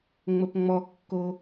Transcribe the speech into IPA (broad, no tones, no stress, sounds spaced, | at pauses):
ŋ͡m ə p ŋ͡m ɔ kː o